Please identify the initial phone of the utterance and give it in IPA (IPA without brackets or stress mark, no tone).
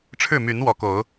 ʈ͡ʂʰ